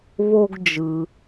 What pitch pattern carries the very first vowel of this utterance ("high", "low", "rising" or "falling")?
high